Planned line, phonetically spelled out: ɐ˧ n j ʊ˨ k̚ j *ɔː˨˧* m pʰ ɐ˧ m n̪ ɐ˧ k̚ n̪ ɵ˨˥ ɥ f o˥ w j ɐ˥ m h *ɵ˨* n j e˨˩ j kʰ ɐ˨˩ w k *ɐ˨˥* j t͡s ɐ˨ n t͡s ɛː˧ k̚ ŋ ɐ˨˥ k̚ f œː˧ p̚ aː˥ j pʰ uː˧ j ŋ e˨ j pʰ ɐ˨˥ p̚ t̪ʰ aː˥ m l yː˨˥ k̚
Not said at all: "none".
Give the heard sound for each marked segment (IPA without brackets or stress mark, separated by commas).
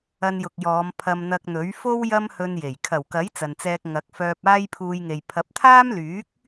ɔː˨˧, ɵ˧, ɐ˨˥